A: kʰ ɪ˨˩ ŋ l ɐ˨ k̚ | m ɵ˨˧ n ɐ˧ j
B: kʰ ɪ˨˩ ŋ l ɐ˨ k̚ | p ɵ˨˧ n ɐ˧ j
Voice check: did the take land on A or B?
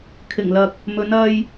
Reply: A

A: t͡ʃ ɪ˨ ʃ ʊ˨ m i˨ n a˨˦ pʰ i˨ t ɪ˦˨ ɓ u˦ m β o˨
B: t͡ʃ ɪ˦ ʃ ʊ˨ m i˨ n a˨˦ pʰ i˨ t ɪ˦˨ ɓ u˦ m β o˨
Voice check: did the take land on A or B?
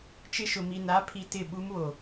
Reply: B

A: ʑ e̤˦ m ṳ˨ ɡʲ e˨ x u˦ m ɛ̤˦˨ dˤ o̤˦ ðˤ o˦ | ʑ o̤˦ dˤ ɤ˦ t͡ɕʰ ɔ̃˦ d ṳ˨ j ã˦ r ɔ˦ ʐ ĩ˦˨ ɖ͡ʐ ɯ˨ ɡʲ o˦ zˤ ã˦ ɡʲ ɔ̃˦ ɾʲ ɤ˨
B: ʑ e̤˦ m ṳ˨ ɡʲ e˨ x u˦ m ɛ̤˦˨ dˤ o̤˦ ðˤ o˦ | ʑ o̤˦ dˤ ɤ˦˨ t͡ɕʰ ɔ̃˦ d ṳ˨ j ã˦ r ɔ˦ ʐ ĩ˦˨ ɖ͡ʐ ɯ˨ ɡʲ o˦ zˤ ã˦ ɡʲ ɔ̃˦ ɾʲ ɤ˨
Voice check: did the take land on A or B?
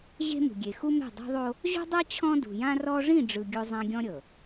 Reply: A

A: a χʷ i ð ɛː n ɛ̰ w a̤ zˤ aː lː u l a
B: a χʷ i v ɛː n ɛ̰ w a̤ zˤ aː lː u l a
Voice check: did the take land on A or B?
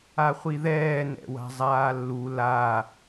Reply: A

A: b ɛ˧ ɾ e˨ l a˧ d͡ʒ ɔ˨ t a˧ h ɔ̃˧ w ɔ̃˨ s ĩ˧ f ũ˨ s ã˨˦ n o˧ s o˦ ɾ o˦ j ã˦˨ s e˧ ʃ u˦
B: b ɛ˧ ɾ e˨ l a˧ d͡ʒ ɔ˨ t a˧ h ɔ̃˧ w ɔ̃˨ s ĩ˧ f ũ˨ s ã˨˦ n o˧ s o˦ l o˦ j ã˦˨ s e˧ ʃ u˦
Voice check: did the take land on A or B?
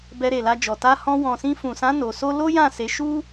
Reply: B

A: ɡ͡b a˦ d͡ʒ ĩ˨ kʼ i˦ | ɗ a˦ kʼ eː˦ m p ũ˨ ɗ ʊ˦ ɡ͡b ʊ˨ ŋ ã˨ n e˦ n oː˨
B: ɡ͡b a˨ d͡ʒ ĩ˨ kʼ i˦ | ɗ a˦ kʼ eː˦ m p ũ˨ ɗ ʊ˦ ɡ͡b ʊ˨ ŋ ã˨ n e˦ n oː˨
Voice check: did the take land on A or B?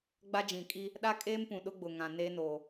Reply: A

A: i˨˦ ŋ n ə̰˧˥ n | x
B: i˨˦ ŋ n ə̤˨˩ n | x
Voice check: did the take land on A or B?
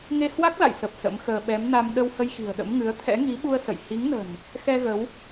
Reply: B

